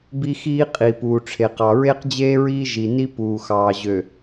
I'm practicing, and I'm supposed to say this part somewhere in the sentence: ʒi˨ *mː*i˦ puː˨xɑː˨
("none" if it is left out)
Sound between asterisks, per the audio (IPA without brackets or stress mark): n